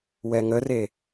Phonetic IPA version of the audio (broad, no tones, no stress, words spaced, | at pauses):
wɛŋəre